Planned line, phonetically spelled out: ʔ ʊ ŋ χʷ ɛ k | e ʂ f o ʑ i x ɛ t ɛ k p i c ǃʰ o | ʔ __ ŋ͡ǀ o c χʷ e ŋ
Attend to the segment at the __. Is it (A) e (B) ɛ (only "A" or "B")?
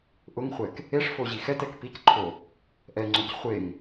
B